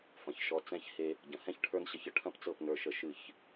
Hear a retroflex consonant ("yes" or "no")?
yes